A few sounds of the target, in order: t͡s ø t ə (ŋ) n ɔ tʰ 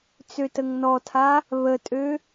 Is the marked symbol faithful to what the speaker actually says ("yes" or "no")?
yes